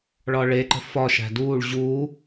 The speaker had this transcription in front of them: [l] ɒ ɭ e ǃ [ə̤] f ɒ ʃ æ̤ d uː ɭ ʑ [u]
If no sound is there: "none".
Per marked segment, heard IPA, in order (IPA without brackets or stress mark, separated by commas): ɭ, ə̤, u